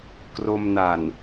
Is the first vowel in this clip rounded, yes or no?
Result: yes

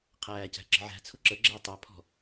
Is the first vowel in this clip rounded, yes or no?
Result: no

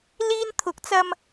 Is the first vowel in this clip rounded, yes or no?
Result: no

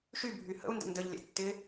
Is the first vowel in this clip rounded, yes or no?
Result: yes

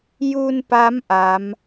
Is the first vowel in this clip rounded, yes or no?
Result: yes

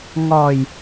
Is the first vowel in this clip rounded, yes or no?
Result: yes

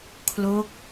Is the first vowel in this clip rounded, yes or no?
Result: yes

